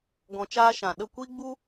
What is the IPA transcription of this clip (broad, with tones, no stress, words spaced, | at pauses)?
ɡɔ̃˧t͡ʃaː˦ʃã˨ ɗə˦˨ kʷi˦ɡ͡bu˦